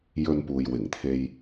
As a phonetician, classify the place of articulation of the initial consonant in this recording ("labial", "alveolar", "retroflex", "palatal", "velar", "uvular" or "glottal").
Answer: palatal